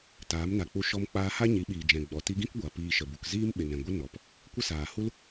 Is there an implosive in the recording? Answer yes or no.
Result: yes